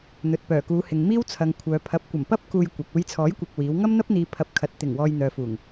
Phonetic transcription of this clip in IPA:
n̪ ɵ˨ t̚ p œː˨˩ k uː˨˧ h ɪ˨ ŋ m iː˥ w t͡sʰ ɐ˨ ŋ kʷʰ œː˨ pʰ ɐ˨˥ p̚ kʷ ɐ˨˩ m p ɐ˥ p̚ k uː˧ j kʷ ɐ˨ k̚ uː˧ j t͡sʰ ɔː˨˥ j kʷ ɐ˨ k̚ w iː˨˥ w ŋ ɐ˥ m n̪ ɐ˥ p̚ n̪ iː˨˧ pʰ ɐ˨ p̚ kʰ ɐ˨˥ t̚ t̪ ɪ˨˩ ŋ w ɔː˧ j n̪ œː˨ f uː˨˩ ŋ

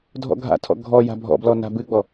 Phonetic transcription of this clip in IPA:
dʱ ɔ̰ ɡʱ a̰ tʰ ɔ̰ ɡʱ ɔ j a̤ bʱ ɔ̰ b l ɔ n a̤ b ɨ ɡ͡b ɔ

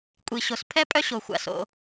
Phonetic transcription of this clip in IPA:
kʷʼ i˩ ɕ o˩ s pʰ ɛ˥ pʼ œ˥ ɕ o˩ xʷ a̰˩ s o̰˩

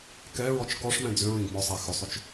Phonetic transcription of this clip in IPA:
k ɛ ɹ ɔ t͡ʃ k ɔ ʂ m ɛ̃ d͡z ʏ ɹ ĩ ɡ m ɔ sˤ æ x ʏ sˤ ʏ t͡ʃ

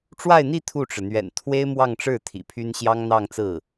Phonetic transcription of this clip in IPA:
ʈ͡ʂ w a˥˧ ɪ̯ n̪ i˥˧ t̪ʰ u˥˩ ʈ͡ʂ ɻ̩˩ n̪ ɥ ɛ̰˨˩ n t̪ʰ w e˥ ɪ̯ m w ɑ˥˧ ŋ ʈ͡ʂ ɻ̩˥˩ t̪ʰ ḭ˨˩ pʰ y˥ n ɕ j ɑ˥ ŋ n̪ ɑ˥˧ ŋ t͡s ɹ̩˥˩

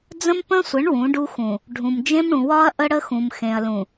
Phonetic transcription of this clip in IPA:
d͡z ə̃˦ m p ə̃˦ sʷ ə˨˦ ɳ w ũ˨˦ ɖ u˦ x ũ˨ | ɖʱ ũ˨ m d͡ʒ ẽ˦ m ɽ ũ˨ w ɒ˦ ɐ̯ ʔ ə˦ ɽ ə˦ x ũ˨ m x ẽ˨ ɐ̯ l ũ˨

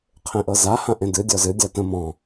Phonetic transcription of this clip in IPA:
qʰ ẽ ʔ ɤ z a h ã ʔ ẽ d ɨ dʲ ɔ z ɨ dʲ a t ə̃ m ɔ̃

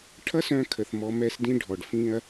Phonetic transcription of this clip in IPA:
ʈʰ ʌ˦ s œ̃˧ kʰ ə˨ θ m ɔ˧ m ɛ˧ s d ĩ˧ ɖʱ ɔ˨ ɖ f ĩ˧ ɐ̯

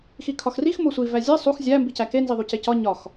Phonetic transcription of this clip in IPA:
x i kʰ ɒ x r i x m o sʷ i v æ zʲ e sˤ u x zʲ æ m b i c æ k e n z i ðˤ u c e c ɒ ɲ ɒ x

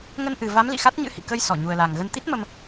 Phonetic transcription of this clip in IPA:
ŋ ə˧ n ʔ ɨ˨˩ v a˨˦ m l ḭ˧˨ x a˦˥ t̚ ɲ ɨ̰˧˥ h ḭ˧˨ k ə˧ j s ɔ˧˩ ɲ u˨˩ ə̯ l a˨˩ ŋ ɣ ə˧ n t̪ i˦˥ t̚ m ə˧ m

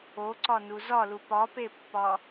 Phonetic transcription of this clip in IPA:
o ǀ ɒ n u z ɒ l u p ɒ p e pː ɒ

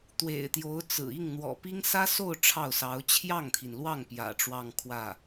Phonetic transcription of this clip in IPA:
t̪ w ḛ˨˩ ɪ̯ t̪ j o˧˥ ʊ̯ t͡s ɹ̩˨˩ i˥˩ ŋ n̪ w ɔ̰˨˩ p i˥ ŋ s ä˥ s o˥˧ ʊ̯ ʈ͡ʂʰ ɑ˥˩ ʊ̯ s ɑ˧˥ ʊ̯ t͡ɕʰ j ɑ˥˩ ŋ t̪ʰ i˩ n l w ɑ˥˩ ŋ p j ä̰˨˩ ʈ͡ʂ w ɑ˥˧ ŋ kʰ w ä˥˩

